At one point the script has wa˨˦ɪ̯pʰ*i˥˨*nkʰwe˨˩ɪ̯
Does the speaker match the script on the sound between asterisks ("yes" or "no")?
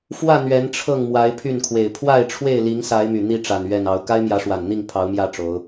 no